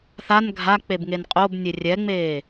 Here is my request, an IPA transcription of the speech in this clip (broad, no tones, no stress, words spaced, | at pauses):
θan ɡʱak͡pebŋen qʼobnʲe rʲɛŋ͡meː